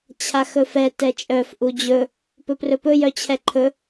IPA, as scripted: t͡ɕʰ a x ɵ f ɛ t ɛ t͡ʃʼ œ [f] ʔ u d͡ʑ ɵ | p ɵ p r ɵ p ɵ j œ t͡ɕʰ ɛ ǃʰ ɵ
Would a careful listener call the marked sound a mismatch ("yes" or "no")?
no